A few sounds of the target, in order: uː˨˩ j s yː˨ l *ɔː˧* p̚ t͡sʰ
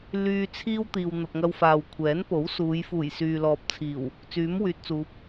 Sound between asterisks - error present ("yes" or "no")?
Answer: yes